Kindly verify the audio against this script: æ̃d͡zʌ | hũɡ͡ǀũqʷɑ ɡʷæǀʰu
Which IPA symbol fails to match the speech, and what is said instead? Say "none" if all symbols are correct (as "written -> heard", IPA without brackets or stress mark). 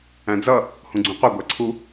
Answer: ɑ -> ʌ